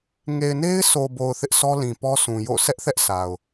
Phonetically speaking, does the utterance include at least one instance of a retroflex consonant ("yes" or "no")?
no